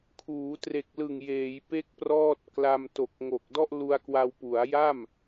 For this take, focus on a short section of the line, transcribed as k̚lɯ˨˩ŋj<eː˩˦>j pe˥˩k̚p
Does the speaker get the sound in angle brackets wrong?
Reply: no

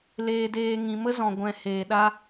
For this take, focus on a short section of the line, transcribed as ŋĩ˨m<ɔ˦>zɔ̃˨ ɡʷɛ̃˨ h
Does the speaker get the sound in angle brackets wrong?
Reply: yes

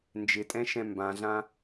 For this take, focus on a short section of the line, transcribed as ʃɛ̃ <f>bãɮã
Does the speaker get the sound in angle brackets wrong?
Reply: yes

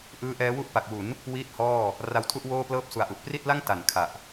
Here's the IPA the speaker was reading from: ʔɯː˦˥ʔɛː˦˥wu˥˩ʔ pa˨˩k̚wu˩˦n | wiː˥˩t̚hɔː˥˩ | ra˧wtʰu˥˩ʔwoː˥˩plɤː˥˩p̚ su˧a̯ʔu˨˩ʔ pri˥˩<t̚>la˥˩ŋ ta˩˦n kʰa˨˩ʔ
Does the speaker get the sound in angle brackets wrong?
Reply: no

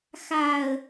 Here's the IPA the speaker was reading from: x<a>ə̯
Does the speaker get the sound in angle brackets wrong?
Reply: no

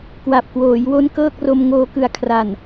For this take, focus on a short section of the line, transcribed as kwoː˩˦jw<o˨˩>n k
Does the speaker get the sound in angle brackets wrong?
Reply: yes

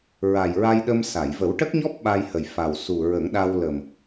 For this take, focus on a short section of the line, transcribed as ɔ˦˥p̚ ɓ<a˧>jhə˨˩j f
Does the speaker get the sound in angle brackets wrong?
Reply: no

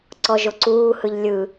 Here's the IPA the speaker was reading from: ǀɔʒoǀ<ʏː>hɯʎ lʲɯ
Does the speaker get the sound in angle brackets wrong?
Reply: yes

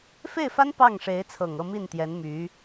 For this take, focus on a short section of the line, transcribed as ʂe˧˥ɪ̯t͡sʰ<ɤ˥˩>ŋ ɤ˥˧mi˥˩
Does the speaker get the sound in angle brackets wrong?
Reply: yes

